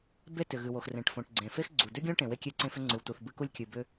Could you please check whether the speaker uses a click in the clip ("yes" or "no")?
yes